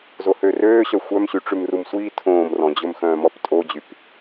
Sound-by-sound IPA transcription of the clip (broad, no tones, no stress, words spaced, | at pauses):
zohøːrøːɕœ xʷœmɕyʈ͡ʂʉm rumsʷiː tʰõːmrɔ̃d͡ʑɵm xœ̃ːmɔptʼod͡ʑyp